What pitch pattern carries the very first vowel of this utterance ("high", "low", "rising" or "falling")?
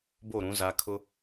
falling